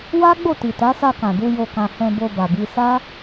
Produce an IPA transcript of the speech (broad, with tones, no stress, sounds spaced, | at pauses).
w a˦ ɡ͡b o˦˨ t i˨ t a˨˦ s a˧ k ã˨ d u˧ j o˨ k ã˨ h ɛ̃˧ b o˧ b a˨ b i˧ s a˦